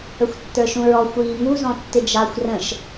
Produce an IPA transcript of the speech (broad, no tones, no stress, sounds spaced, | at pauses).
ə xʷ tː ə˞ ʃ ũ ɹ ɔ xʷ iː ŋ u z ɔ̃ tː ɪ d͡ʒ ɑ xʷ r ə̃ ʃ